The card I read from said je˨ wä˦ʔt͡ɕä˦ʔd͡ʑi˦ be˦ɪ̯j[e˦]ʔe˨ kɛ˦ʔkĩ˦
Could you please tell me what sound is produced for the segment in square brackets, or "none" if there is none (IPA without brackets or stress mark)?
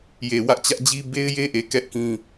e˦